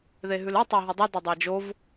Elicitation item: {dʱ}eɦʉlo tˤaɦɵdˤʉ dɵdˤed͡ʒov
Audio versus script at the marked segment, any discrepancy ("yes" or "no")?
yes